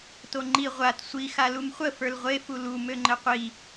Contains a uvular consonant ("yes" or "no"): yes